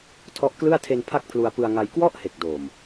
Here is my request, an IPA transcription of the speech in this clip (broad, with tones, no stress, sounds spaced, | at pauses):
tʰ ɔ˦˥ ʔ k l ɯ˥˩ a̯ tʰ e˧ n pʰ a˥˩ k̚ pʰ l u˧ a̯ p ɯ˧ a̯ ŋ a˧ j k w ɔ˥˩ ʔ h e˨˩ k̚ d oː˨˩ m